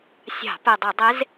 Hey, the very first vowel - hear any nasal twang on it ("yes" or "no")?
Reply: no